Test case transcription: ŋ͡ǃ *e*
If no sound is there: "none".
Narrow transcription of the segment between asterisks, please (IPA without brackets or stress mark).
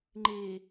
e